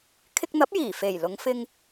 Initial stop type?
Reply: aspirated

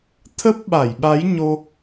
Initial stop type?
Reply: aspirated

